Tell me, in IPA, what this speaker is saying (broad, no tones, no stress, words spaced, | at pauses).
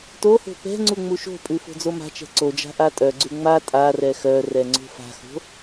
toho̤ pɛ̤ŋ͡ǀu ŋ͡muʃo̤pʼʉ fo̤d͡zoma̤t͡ʃɛ̤ ǀod͡ʒa̤ ʔatʼœɡ͡ǀʉ ŋ͡ma tʼa rɛxœrɛ ŋ͡ǀo̤fa̤xo̤